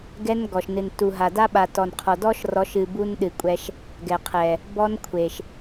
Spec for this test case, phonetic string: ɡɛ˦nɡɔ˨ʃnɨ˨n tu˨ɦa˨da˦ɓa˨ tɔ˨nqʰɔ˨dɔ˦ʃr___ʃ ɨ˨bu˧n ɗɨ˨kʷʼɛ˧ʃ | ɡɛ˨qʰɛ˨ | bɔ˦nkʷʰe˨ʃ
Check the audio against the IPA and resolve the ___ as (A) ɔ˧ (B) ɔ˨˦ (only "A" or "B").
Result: B